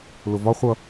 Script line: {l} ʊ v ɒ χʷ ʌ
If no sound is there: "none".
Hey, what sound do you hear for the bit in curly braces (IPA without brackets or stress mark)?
l